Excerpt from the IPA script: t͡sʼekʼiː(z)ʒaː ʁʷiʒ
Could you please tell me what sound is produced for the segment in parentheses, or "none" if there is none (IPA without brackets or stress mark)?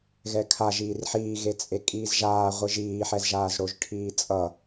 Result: z